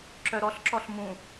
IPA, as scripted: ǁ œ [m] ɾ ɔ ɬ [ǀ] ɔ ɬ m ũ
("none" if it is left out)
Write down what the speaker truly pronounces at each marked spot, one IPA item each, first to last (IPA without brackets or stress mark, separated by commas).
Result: none, ǁ